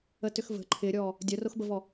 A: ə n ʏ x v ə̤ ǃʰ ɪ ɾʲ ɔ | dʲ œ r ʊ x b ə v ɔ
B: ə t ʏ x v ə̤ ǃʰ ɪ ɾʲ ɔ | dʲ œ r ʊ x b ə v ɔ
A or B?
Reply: B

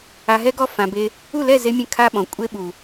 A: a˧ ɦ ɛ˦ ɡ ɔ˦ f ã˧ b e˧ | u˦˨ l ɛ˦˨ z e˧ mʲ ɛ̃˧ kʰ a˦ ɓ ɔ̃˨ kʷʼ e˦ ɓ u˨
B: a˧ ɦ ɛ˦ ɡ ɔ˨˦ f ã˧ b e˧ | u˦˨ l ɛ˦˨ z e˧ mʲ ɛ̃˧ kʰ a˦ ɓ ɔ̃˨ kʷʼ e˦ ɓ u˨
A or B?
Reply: A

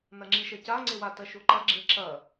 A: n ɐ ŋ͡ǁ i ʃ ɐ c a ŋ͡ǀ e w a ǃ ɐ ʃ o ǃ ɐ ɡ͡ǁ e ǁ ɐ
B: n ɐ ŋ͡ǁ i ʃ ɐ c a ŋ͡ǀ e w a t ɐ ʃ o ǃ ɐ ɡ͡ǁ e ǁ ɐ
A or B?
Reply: B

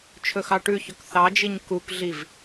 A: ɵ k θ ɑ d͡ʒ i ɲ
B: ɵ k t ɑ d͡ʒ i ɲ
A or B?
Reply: A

